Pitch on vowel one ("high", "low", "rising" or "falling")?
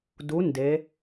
rising